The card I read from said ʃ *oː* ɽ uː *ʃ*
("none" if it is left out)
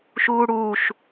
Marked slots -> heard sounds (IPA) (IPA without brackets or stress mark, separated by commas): uː, ʃ